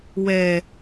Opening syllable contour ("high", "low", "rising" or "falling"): low